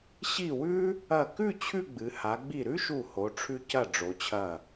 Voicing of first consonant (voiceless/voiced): voiceless